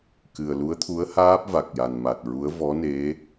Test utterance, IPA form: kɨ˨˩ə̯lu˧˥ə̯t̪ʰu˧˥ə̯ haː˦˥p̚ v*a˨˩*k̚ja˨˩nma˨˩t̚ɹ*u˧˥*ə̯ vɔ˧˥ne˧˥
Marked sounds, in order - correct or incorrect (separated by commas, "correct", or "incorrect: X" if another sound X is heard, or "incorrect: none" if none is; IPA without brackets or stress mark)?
correct, correct